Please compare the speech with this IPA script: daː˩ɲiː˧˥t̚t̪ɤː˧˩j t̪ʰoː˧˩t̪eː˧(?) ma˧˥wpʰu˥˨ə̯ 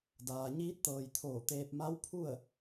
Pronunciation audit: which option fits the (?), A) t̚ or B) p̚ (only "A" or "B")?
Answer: B